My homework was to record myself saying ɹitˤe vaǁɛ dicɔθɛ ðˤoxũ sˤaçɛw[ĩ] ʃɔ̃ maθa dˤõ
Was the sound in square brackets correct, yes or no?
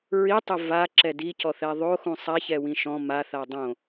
yes